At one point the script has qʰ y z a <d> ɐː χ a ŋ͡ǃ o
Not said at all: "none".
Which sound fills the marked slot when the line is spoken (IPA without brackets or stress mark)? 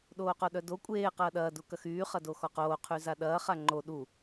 ɗ